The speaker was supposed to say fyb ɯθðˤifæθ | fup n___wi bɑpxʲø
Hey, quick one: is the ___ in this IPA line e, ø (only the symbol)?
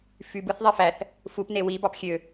e